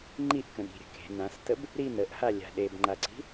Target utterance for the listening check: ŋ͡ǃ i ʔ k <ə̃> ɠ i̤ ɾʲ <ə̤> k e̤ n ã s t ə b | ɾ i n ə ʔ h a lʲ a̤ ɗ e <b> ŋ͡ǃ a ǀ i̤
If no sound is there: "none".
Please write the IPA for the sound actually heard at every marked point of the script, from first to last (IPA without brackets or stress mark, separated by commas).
ə̃, ə̤, b